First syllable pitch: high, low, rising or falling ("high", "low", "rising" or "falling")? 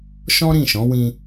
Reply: high